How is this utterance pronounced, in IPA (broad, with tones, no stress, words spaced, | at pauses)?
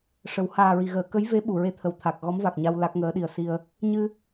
ʂə˨˩˦w haː˨˩ɹi˨˩˨ɣəː˨˩˨ kə˧˥jve˧˥ ɓu˨˩˨ɹe˧t̪ʰə˨˩w t̪ʰa˨˩k̚ ɣɔ˧˥mva˨˩k̚ɲa˧w la˦˥k̚ŋəː˧˥ɗi˧ə̯ si˧ə̯ | ɲɨ˧